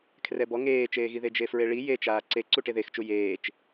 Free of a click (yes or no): no